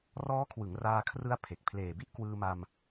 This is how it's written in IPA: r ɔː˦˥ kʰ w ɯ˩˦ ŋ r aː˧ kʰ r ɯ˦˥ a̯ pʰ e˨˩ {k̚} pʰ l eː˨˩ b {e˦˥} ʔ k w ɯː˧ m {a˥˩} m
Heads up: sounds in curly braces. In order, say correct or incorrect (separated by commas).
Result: correct, incorrect, incorrect